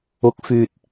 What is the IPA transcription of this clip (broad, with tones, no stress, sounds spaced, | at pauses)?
ʊ˨˥ k̚ f yː˨ t̚